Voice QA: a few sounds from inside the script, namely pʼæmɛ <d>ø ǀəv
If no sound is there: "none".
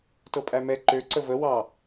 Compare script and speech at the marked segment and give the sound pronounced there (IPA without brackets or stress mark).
ǃ